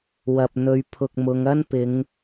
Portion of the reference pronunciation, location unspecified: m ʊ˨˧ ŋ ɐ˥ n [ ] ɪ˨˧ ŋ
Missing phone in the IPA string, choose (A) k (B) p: B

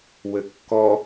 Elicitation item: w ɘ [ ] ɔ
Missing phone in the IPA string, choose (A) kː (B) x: A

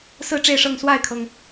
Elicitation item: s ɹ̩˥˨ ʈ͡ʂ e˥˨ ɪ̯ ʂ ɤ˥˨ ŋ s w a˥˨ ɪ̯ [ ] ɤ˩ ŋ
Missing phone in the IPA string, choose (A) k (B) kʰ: B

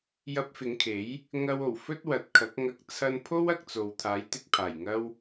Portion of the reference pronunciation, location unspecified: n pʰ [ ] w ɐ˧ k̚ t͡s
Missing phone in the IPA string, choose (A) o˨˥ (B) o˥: B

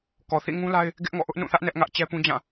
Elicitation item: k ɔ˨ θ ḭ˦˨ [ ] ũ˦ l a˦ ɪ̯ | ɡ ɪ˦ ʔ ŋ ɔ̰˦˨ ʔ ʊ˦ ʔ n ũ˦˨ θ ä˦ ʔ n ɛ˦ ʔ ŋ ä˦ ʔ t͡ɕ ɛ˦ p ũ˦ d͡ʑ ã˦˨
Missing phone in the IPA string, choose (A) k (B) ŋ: B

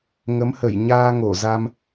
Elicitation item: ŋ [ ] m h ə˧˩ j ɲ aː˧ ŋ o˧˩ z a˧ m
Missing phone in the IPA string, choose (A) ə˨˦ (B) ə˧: A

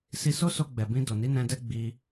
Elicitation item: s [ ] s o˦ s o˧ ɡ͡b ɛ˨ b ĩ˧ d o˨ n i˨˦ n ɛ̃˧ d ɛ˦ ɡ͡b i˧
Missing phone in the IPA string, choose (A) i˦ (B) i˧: B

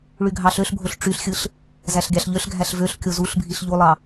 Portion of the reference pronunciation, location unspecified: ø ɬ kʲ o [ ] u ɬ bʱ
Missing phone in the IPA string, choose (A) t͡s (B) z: B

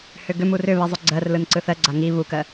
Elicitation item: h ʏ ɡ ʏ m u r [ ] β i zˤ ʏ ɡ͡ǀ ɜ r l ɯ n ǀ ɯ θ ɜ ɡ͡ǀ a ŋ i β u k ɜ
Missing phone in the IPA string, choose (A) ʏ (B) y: A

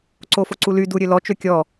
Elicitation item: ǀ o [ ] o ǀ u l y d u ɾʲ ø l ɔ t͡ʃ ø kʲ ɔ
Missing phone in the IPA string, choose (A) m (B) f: B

